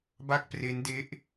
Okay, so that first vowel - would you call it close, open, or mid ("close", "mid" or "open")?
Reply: open